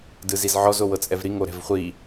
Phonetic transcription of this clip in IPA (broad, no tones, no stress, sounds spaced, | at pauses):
d ɯ z i z ʕ ɔ z o w ɤ t͡sʼ ɛ v ɾ i ŋ o ɾ ɛ̤ v χʷ i